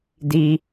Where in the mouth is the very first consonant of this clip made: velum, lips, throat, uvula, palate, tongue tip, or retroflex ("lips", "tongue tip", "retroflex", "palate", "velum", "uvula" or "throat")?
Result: tongue tip